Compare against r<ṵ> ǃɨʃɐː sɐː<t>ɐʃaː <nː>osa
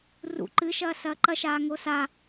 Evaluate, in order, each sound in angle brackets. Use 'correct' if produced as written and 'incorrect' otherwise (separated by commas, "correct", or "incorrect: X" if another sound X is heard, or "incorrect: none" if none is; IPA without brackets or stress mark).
correct, incorrect: ǃ, incorrect: ŋ